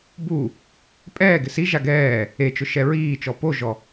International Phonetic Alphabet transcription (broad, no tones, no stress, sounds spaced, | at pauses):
b u | pʼ ɛː ɡ ɪ s i ʒ a ɡ ɛː | e t͡ʃ ʊ ʃ ɛ ɹ iː t͡ʃ ɔ p o ʒ ɔ